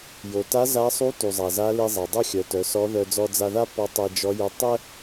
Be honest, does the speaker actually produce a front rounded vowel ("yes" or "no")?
yes